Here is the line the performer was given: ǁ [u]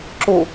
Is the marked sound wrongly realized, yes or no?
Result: yes